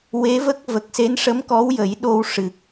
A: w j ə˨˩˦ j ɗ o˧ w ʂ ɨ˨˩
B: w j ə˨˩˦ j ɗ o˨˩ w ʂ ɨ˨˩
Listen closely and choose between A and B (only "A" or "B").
A